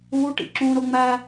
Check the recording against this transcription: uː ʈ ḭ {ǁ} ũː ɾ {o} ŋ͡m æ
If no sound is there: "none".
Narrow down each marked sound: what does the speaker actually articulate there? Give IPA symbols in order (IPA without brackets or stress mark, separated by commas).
ǁ, o